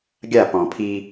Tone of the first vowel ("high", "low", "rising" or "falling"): falling